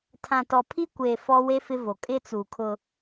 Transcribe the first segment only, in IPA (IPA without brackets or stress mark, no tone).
tʰ